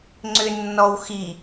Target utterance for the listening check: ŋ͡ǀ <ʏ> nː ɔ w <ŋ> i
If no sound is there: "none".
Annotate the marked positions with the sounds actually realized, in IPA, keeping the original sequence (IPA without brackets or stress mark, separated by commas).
ʏ, x